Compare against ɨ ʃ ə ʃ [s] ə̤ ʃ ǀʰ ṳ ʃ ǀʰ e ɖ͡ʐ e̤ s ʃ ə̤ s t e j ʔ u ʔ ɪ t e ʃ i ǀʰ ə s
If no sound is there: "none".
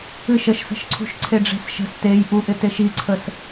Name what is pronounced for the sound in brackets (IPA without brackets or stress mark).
s